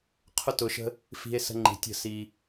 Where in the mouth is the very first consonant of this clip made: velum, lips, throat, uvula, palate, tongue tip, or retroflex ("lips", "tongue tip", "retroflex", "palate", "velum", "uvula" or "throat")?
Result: uvula